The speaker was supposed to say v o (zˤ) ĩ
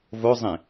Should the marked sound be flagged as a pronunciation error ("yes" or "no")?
no